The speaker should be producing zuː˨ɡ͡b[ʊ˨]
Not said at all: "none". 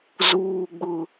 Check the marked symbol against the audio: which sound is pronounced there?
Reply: ʊ˨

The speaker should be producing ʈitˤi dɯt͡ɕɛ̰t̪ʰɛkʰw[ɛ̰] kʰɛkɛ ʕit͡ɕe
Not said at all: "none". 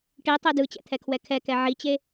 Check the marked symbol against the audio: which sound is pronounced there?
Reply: ɛ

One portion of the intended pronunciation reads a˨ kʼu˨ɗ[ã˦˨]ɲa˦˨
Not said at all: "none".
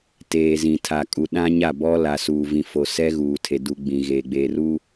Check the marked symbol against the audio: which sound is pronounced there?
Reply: ã˦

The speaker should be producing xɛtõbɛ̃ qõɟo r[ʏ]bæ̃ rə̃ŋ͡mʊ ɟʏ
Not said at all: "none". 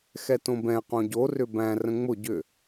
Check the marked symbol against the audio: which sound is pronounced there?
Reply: ʏ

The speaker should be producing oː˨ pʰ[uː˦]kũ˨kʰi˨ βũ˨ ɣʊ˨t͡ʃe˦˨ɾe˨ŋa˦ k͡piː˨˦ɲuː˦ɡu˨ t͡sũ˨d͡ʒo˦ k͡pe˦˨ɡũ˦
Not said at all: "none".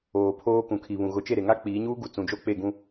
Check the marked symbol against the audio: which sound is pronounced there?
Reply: oː˦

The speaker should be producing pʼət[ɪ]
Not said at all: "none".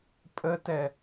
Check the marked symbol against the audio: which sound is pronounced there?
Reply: ɛ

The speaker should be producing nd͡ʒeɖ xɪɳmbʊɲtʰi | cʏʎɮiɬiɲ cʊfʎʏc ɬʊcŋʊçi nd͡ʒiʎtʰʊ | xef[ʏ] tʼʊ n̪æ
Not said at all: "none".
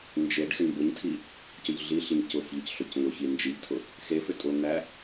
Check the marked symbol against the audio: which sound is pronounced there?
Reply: ʏ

